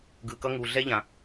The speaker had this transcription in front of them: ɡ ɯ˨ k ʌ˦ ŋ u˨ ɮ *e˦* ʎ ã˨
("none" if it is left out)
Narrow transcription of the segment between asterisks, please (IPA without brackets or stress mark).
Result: ɛ˦